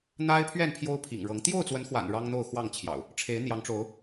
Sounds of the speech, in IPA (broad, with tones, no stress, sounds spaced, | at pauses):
n̪ a˦ ɪ̯ pʰ ɥ ɛ˥˨ n pʰ j o˦ ʊ̯ pʰ ḭ˨˩ ŋ ɻ ɤ˨˦ ŋ t̪ j o˥˨ ʊ̯ t͡s w ə˨˦ n x w a̰˨˩ n ɻ ɑ˦ ŋ n̪ o˥˨ ʊ̯ x w ɑ˥˨ ŋ t͡ɕʰ j ɑ̰˨˩ ʊ̯ | ʈ͡ʂʰ e˨˦ ɪ̯ n̪ j ɑ˨˦ ŋ ʈ͡ʂ o˨˦ ʊ̯